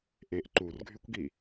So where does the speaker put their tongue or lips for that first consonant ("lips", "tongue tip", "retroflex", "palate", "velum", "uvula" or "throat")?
throat